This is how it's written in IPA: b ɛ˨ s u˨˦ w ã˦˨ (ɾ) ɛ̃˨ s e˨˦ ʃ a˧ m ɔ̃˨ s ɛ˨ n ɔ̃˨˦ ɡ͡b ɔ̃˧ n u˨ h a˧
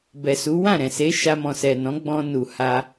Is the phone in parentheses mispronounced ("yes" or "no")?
no